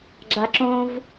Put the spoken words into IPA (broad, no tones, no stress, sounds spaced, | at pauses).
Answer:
ɡ͡ǁ a ǁ õ v